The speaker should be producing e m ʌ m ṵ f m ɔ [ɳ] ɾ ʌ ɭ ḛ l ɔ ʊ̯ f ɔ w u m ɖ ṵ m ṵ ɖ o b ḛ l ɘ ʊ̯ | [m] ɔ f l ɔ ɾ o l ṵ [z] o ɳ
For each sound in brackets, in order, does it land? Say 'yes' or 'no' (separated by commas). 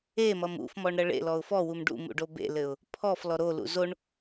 yes, no, yes